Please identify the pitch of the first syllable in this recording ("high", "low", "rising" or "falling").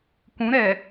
rising